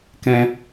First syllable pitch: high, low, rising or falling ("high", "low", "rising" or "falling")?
high